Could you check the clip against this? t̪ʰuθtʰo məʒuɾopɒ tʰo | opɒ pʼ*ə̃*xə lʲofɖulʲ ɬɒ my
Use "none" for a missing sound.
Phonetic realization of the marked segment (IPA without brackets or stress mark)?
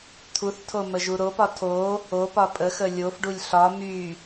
ə